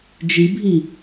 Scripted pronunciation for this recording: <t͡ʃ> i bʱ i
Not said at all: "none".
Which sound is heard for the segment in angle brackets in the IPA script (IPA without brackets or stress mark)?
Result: d͡ʒ